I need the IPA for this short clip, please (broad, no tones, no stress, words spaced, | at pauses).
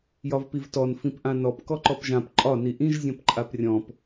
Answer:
jɒvpivtɔn fĩpʔãnɔp kɔǃɔpʒãp ǃʼɒ niʔĩʒ zʲɔ̃pǃʼaprʲɔ̃p